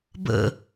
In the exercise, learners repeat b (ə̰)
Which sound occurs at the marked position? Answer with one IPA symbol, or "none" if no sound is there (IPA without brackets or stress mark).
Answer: ə̰